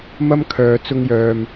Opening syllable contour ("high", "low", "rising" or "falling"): high